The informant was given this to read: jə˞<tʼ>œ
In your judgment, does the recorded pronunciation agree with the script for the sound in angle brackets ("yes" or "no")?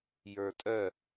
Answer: yes